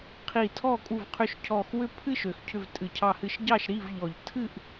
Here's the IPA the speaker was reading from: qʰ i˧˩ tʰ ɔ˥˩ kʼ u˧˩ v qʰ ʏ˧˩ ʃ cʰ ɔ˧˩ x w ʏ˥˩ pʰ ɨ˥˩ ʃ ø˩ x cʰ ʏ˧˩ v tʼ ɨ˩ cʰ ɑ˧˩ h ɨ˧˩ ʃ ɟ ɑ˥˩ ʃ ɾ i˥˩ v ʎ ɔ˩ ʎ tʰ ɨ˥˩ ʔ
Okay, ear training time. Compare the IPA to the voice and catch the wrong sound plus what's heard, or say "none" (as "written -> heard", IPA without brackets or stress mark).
none